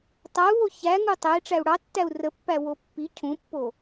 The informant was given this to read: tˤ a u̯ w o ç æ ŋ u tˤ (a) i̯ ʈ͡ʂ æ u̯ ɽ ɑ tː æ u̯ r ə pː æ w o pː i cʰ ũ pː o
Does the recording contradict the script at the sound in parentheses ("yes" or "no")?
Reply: yes